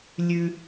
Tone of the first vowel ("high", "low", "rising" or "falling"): high